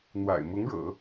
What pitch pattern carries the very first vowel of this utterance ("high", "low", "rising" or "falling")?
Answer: low